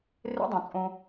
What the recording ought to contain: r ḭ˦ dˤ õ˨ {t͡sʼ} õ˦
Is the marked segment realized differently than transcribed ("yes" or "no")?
no